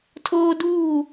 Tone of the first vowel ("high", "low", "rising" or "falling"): high